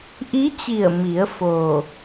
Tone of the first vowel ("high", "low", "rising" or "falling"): rising